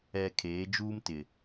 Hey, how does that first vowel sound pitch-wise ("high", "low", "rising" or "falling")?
low